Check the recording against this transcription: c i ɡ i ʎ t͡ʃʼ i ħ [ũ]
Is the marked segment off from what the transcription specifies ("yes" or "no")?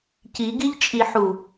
yes